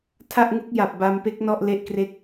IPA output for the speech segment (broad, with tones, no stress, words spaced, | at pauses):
tʰa˥˩ʔŋu˦˥k̚ ja˨˩p̚ba˧mpe˦˥k̚ nɔ˥˩ʔle˦˥ʔkre˥˩k̚